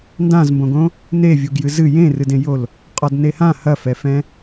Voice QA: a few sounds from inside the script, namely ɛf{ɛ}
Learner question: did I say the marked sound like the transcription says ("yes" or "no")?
no